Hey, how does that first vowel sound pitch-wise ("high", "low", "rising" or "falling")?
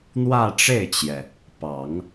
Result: falling